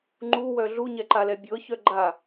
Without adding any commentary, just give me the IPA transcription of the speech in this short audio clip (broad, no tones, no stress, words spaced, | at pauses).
ŋ͡ǃuwœ ɮuɲɛǃalɛ bʲɤçœ ɡ͡ǃa